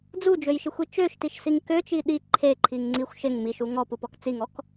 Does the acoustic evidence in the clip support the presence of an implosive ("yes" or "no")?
yes